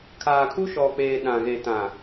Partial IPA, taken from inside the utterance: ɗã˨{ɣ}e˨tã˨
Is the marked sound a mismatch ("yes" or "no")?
no